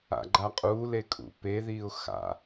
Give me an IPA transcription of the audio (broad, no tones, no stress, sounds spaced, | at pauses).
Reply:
a̰ ɡ͡ǃ a qʼ u l e kʼ ṵ p e ð iː ʊ̯ x a̰